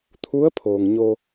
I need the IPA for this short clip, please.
t̪ʰu˧˥ə̯pʰoː˩ŋɲo˧

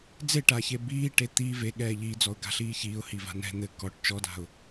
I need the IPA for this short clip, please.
d͡zeʈaçe biːʈe t̪i ve ɠɛːʎid͡zɔʊ̯ ɡa̤ɬiːçiːʊ̯ hiva̤nɛ̤ n̪ɘ kɔʈ t͡ʃɔda̤ʊ̯

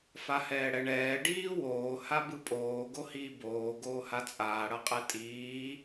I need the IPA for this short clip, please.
fahɛːɽɛɳɛː ɖiːwoː habɯpʼoː ɡohiːboː ɡoːhat͡sʼaː ɽʌqʼɛtʼiː

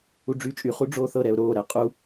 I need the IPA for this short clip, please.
uɖ͡ʐyːt͡ʃʼy χuɖ͡ʐoːθɤ ɾɛʊ̯ɾoː ɾɛqʼu

